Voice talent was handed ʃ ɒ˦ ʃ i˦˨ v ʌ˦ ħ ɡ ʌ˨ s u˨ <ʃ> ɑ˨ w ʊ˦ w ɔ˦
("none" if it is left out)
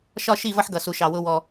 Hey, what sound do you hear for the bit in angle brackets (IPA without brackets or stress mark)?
ʃ